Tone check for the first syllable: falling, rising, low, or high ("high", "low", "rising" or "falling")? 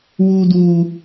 high